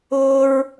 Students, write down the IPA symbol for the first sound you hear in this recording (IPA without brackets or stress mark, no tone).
ʊː